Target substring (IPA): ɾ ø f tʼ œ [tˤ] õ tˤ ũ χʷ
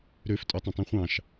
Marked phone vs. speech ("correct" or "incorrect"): correct